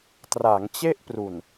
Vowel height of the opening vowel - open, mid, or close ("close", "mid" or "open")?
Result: open